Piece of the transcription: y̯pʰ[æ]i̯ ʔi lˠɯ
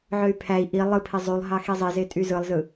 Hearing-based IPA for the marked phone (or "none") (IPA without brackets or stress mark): æ